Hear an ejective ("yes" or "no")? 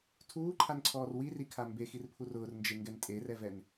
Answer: yes